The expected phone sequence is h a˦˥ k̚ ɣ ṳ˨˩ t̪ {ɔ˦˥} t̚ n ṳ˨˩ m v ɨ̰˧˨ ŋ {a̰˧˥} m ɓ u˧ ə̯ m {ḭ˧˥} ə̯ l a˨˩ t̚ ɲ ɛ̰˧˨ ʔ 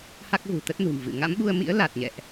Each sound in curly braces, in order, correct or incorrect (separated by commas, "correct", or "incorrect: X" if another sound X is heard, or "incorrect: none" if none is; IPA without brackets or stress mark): incorrect: ə˦˥, correct, correct